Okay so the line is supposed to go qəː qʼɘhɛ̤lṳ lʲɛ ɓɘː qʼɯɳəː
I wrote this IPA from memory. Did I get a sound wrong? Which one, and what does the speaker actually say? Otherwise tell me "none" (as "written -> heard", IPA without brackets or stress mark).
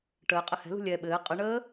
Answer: q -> ʈ